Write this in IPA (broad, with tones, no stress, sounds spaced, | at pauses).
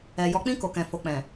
ɛ˨ j ɔ˨˦ k͡p ĩ˦˨ k o˨ k ɛ̃˨ f o˨ k͡p ɛ̃˨